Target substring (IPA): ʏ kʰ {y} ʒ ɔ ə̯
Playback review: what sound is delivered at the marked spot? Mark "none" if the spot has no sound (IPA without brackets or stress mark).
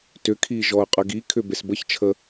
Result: i